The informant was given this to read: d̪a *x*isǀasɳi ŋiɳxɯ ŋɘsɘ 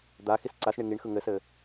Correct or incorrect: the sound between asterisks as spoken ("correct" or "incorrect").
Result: correct